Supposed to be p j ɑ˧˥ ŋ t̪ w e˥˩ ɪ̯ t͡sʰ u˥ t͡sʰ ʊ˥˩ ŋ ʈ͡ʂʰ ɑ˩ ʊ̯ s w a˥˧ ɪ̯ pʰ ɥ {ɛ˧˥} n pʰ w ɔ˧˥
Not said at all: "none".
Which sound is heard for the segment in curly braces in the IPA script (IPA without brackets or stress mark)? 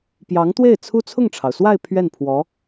ɛ˥˩